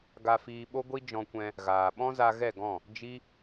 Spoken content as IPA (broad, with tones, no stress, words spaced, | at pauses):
ɡa˧fiː˧ɓo˦ɡʷi˦ d͡ʒɔ̃˧kʷɛ̃˧ | ɣaː˨ɓɔ̃˦za˧ ɣɛ˦˨ɡɔ̃˦˨ | d͡ʒi˦